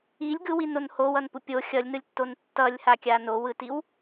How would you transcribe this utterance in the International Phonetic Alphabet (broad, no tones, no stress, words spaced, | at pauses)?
ilʲ ɡɯwinon howʌnpu pʲo xʲʌlʲnɯlʲtːon tːʌlʲhakʲa nowɯtiw